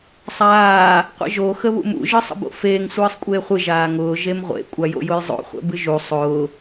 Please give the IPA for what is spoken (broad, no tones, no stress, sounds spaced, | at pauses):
sˤ aː | qʷ ə̰ ʒ o x ə β ṵ m ṵ ʒ ɨ sˤ ə̰ b o̰ f eː ŋ sʷ ɨː sˤ kʷʼ eː χʷ ɨ ʒ aː ŋ ʊː ʒ e m ʁʷ ḛ kʷʼ a j o̰ j ʊ j zˤ o̰ χʷ ɛ̰ b ɨ ʒ u sˤ ʊː